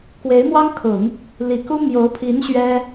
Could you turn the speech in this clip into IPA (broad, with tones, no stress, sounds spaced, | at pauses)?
k w e˧˥ ɪ̯ m w ɑ˥ ŋ kʰ ʊ˨˩˦ ŋ | l i˨˩ k u˥ m j o˧˥ ʊ̯ pʰ i˧˥ n ɕ ɥ ɛ˥